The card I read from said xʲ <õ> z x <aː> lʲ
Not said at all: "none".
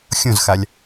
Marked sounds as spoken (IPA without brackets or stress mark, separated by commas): õ, a